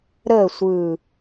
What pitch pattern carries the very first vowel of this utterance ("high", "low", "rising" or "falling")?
falling